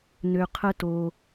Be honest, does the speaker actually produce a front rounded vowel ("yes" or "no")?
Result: yes